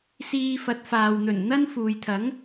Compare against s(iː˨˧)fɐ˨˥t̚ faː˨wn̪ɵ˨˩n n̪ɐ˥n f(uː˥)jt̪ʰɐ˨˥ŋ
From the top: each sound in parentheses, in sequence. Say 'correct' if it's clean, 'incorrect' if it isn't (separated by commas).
incorrect, incorrect